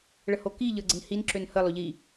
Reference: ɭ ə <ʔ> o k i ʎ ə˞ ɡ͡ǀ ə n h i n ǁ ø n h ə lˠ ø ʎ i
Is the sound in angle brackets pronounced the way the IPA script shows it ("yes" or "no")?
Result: no